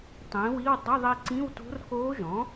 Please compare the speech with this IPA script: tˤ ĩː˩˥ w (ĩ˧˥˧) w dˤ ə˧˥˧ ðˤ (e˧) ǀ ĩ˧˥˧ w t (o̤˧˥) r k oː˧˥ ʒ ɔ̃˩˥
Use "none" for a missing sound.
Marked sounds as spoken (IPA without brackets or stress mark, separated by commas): i˧˥˧, i˧, o̤˧˥